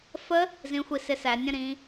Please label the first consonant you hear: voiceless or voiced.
voiceless